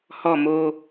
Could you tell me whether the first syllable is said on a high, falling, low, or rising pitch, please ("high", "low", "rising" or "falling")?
falling